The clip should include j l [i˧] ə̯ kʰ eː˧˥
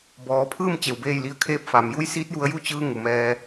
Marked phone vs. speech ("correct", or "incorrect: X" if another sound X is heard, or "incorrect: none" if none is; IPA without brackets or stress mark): incorrect: i˧˥